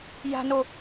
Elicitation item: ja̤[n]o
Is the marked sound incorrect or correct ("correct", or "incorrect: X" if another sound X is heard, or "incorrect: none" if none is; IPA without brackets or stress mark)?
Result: correct